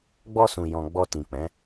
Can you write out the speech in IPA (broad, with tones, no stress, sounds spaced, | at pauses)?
ɡ͡b ɔ˧ s ũ˨ j ɔ̃˨ ɡ͡b ɔ˧ t ĩ˨ k͡p ɛ̃˨˦